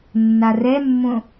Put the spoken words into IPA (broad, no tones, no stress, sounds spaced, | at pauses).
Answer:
nː a r ɛ mː õ